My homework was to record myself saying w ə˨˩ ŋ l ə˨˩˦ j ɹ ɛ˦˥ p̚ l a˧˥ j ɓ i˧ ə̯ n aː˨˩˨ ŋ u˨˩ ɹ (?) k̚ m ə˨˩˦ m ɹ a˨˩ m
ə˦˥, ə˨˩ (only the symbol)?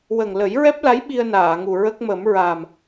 ə˦˥